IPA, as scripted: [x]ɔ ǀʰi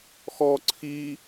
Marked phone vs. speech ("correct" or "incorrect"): correct